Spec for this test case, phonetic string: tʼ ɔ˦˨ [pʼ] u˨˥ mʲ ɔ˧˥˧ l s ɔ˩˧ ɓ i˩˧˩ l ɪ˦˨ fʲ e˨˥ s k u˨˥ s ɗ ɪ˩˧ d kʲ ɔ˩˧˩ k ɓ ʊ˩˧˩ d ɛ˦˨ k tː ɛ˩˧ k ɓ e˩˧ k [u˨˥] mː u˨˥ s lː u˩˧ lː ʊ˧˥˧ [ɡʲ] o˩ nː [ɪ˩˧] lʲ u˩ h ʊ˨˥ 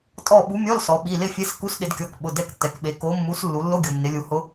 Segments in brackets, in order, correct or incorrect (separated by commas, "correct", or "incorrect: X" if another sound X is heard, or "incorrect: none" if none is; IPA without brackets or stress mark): incorrect: ɓ, incorrect: o˨˥, correct, correct